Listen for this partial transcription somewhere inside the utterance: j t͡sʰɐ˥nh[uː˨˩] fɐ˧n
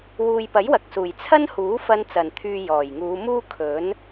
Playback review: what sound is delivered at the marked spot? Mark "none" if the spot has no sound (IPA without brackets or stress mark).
uː˨˥